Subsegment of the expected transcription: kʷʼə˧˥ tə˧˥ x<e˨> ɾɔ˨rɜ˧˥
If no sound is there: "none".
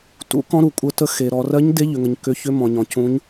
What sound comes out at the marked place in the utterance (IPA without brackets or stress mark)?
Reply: e˨